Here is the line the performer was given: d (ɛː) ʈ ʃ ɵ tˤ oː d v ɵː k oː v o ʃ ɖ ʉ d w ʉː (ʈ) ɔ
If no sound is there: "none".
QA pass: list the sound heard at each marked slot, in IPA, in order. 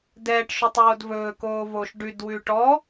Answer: ɛː, ʈ

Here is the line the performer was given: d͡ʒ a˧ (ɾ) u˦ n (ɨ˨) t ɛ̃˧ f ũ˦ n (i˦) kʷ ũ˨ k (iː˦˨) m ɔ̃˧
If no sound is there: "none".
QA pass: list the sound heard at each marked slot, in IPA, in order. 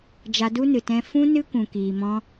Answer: d, ɨ˨, ɨ˦, iː˨

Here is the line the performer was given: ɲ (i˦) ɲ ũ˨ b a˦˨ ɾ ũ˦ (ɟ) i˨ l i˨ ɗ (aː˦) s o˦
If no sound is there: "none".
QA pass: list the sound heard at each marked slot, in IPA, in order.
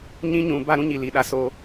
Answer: ĩ˦, ɲ, a˦

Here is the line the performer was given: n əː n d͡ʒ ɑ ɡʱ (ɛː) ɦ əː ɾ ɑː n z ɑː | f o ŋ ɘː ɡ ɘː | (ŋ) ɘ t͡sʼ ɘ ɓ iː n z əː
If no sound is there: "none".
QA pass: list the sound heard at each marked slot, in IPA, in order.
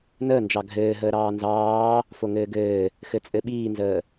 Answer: ɘː, x

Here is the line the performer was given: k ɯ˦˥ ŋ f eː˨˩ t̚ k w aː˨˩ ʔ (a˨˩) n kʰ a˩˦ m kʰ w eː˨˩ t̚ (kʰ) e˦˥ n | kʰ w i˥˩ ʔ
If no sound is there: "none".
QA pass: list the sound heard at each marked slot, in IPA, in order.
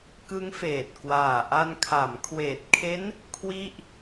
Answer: a˧, kʰ

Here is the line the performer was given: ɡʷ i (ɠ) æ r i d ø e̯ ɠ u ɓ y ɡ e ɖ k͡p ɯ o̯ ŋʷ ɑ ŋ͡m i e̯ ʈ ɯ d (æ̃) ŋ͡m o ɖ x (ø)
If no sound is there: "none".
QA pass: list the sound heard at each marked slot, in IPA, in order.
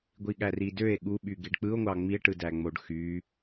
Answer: ɠ, æ, y

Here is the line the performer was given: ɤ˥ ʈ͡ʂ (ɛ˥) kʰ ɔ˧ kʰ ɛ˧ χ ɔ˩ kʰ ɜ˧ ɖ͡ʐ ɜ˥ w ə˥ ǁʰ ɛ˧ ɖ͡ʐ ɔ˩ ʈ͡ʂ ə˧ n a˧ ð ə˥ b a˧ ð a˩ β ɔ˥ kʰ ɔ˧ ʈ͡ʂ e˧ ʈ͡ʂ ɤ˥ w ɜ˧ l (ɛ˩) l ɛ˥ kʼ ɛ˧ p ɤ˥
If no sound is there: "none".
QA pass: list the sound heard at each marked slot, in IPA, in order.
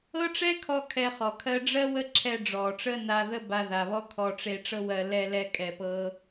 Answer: ɛ˥, ɛ˥

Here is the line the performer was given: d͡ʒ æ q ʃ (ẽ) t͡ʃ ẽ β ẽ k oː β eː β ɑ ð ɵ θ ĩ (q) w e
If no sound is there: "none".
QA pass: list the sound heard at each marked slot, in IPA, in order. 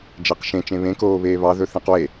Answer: ẽ, q

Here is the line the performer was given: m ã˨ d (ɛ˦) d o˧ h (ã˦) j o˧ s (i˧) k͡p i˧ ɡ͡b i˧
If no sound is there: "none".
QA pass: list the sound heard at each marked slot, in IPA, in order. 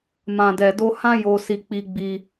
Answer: ɛ˨, ã˦, i˧

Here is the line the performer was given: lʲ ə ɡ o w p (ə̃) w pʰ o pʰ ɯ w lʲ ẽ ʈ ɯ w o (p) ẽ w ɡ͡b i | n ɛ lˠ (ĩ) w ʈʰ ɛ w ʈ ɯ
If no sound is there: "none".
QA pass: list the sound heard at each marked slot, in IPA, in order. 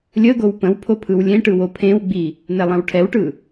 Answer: ə̃, pʰ, ĩ

